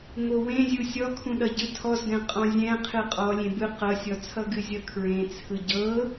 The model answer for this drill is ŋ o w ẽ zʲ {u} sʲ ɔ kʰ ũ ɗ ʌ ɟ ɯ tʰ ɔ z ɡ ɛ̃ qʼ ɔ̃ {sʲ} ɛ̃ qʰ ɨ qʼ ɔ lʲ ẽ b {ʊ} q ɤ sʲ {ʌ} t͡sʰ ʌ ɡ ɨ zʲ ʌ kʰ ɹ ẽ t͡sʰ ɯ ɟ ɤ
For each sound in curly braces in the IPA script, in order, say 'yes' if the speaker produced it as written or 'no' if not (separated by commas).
yes, no, no, no